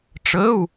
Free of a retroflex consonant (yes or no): no